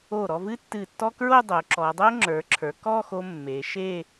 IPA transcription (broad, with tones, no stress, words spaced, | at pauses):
o˧˩ ɾɔ˥˧vɨ˥tːɨ˧˩tːɔ˥ kɹo˥˧dˤo˩˧ ǁɔ˩˧dˤo˥ŋ͡ǁə˞˩˧ǁʰə˞˩˧ kɔ˥˧ xo˧ mːe˩˧ ʃe˥˧